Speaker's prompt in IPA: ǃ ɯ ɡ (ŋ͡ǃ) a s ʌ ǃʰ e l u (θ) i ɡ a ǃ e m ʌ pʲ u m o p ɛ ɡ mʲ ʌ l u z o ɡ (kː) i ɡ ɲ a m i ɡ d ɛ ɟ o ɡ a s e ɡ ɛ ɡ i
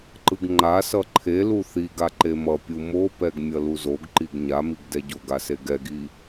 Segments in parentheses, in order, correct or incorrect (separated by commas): correct, correct, incorrect